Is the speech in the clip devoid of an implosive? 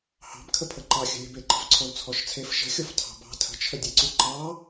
yes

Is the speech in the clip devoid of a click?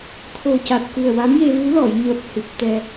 yes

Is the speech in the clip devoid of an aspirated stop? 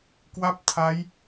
no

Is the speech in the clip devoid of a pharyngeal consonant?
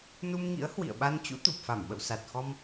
yes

